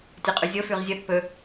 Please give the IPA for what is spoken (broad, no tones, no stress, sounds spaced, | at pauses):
tʲ ɵ qʼ ʉ zʲ o f ʉ ʁ zʲ ɵ θ p ɵ